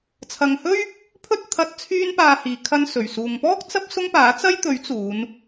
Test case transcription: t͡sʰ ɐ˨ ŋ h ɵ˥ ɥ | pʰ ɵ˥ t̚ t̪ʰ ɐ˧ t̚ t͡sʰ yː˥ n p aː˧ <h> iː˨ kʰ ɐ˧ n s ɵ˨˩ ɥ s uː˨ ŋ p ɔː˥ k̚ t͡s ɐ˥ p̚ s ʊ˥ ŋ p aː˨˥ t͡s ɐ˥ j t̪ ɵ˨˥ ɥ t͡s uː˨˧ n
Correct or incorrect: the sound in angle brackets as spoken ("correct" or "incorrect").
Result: correct